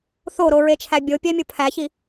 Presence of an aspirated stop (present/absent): present